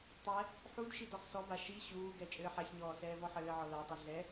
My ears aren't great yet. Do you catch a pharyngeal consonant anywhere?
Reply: yes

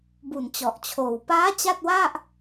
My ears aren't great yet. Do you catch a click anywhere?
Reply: no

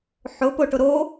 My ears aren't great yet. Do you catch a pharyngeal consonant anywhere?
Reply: yes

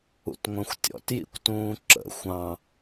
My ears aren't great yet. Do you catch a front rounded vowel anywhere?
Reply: yes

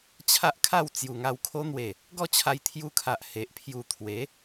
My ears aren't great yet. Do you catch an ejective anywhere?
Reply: no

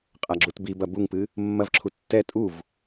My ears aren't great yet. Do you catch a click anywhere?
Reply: yes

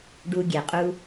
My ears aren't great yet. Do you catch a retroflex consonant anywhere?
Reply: yes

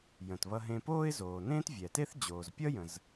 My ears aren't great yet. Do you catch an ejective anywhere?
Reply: no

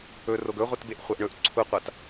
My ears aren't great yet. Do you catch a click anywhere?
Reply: yes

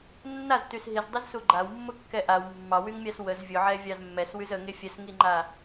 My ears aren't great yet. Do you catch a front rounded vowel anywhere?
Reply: yes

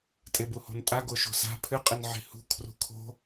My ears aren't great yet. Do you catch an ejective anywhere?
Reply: yes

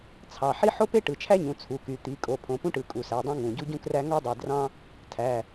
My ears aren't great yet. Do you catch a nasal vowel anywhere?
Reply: yes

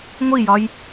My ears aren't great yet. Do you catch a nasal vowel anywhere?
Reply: no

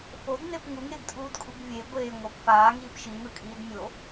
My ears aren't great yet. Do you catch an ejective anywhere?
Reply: yes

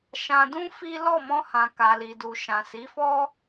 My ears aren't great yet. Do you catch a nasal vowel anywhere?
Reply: yes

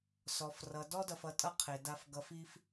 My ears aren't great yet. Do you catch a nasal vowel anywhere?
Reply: no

